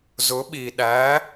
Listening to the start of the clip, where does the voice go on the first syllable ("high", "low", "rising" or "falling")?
rising